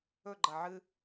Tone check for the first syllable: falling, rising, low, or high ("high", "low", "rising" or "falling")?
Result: falling